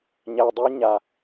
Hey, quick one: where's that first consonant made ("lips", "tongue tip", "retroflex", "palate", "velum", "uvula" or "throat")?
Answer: palate